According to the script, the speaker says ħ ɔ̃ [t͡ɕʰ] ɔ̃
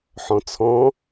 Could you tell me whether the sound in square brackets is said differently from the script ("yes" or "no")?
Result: yes